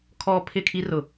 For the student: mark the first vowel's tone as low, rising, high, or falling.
high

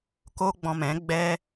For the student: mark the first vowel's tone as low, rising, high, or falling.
high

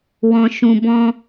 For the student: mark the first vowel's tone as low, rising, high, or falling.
high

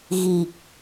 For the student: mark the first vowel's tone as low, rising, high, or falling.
low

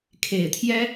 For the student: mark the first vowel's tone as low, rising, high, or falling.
low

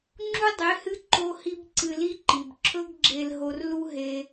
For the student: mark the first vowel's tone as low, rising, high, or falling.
high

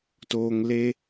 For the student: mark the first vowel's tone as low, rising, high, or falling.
low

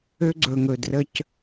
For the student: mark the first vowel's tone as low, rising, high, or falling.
high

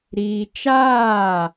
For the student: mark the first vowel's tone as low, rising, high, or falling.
high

